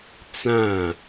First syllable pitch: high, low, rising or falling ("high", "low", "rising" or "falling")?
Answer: falling